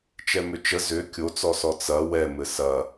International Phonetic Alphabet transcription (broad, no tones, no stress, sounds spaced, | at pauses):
t͡ʃ ɛ m ʏ t͡ʃ ə z ʏ kʲ o t͡s ɔ s ɔ t͡s ɐ w ɛ m ɘ s ɐ